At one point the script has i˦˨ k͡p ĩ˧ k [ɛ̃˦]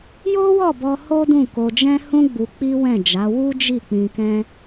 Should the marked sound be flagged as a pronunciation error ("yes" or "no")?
no